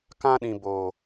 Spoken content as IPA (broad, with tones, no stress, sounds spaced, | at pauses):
k ã˦ ɗ ĩ˨ b oː˨